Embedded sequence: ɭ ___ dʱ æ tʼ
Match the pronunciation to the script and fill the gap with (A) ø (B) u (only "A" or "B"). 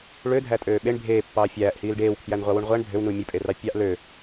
A